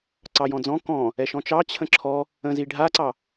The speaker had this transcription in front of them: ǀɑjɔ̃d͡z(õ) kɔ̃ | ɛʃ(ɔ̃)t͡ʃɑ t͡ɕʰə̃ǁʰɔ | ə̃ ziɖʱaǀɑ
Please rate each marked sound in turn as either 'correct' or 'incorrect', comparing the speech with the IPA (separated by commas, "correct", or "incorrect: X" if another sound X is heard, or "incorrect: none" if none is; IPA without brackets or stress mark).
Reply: incorrect: ɔ̃, correct